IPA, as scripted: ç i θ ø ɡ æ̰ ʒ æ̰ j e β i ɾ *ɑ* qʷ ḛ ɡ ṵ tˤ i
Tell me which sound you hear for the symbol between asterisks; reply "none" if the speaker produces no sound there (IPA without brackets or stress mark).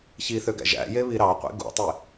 ɑ